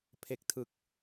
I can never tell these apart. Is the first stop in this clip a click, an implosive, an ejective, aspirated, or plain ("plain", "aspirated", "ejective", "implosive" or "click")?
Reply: aspirated